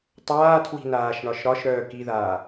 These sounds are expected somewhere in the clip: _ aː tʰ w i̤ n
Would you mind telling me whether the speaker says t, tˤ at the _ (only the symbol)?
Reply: tˤ